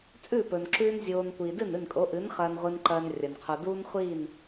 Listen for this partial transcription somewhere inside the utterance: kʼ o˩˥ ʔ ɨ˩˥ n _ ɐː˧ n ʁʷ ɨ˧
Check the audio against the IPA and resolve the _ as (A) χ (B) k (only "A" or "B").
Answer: A